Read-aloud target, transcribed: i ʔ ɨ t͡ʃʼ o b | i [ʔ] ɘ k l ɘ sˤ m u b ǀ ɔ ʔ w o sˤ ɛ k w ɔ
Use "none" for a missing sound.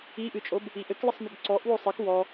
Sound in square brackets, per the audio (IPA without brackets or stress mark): ʔ